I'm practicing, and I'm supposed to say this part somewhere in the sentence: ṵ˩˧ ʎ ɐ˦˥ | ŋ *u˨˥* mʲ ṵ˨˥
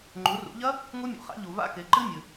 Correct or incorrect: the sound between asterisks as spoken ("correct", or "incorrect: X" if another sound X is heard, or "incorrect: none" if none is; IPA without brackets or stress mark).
incorrect: u˦˥